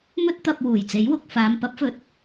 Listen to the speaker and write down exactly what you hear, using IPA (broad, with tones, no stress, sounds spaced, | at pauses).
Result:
m ɵ˥ t̚ t̪ ɐ˧ p̚ w uː˨˩ j t͡s e˨˥ j w ʊ˨ k̚ f aː˨˧ m p ɐ˨˥ p̚ f ɵ˨˥ t̚